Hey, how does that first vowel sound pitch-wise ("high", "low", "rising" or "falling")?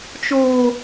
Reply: high